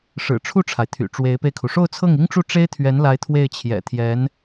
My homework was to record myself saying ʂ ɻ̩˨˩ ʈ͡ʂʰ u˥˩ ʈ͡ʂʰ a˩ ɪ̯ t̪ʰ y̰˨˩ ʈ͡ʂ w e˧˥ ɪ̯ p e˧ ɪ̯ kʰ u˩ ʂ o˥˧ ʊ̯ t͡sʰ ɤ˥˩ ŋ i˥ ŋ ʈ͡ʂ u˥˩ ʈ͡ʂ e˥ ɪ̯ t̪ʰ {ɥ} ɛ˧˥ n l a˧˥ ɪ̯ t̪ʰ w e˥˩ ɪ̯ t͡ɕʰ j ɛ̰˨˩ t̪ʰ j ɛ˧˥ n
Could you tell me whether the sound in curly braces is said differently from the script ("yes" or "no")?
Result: no